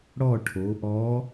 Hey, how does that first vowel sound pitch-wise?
falling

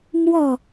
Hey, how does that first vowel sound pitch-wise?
falling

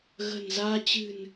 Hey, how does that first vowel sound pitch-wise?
low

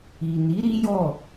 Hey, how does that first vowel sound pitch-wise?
low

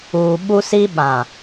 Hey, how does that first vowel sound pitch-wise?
low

